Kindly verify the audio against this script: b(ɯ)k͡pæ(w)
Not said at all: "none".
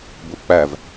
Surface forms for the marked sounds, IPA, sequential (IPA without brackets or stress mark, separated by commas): u, v